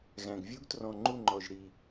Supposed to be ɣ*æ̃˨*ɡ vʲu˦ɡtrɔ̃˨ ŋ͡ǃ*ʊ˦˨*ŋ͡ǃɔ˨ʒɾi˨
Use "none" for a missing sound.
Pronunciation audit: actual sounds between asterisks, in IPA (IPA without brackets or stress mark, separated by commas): æ̃˨, u˦˨